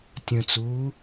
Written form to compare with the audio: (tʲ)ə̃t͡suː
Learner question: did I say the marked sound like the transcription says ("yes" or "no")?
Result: yes